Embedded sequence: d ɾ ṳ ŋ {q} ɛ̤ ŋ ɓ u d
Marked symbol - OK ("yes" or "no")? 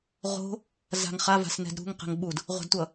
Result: yes